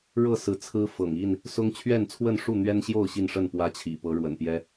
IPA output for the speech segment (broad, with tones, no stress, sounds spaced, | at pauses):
ɻ ɤ˥˨ s ɹ̩˨˦ t͡sʰ ɹ̩˦ f ɤ̰˨˩ ŋ i˥˨ n | s ʊ˦ ŋ t͡ɕʰ ɥ ɛ˥˨ n t͡sʰ w ə˥˨ n ʂ u˥˨ n̪ ɥ ɛ˦ n ɕ j o˥˨ ʊ̯ ɕ i˥˨ n ʂ ə˥˨ n p w ä˦ t͡ɕʰ ḭ˨˩ p ɤ˨˦ ɻ w ə̰˨˩ n p j ɛ˦